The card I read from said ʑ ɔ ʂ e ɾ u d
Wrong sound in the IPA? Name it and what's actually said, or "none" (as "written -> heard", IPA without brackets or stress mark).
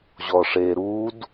none